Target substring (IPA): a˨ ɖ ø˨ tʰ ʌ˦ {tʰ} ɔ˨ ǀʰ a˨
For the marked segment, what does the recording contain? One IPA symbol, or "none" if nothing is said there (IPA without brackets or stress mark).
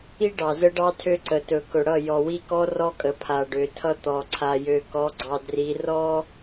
t̪